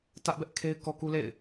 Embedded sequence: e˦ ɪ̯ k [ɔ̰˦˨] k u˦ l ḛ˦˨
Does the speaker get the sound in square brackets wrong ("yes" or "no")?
yes